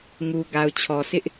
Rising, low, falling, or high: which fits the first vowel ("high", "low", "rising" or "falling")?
low